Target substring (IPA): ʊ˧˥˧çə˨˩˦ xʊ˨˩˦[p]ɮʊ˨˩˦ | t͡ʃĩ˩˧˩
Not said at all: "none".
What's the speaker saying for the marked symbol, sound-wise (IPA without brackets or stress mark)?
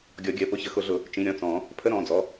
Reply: none